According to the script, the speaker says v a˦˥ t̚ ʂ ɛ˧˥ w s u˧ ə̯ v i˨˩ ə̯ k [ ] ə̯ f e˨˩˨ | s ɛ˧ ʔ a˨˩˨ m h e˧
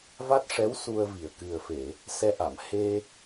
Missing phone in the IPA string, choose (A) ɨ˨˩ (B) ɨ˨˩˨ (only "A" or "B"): A